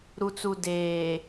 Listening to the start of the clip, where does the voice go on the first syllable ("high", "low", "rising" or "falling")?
low